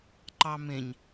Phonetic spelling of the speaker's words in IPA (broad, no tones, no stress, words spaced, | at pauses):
ǃɑmẽɲ